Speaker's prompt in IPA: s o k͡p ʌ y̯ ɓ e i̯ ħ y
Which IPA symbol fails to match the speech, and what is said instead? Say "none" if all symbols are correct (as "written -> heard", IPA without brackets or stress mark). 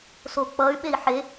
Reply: y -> e